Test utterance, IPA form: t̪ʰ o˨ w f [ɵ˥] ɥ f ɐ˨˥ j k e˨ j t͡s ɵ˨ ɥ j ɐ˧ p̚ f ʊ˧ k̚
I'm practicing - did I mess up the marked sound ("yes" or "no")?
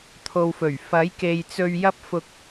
yes